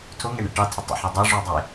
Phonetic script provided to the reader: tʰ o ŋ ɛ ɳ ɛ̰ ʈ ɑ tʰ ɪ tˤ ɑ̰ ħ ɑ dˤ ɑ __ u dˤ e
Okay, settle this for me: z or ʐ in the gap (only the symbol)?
ʐ